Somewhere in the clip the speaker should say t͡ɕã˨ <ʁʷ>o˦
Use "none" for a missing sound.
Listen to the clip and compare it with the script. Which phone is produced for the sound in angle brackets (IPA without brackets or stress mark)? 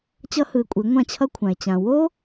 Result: w